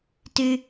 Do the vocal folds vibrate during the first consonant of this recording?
no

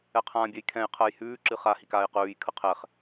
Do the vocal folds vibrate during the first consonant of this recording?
no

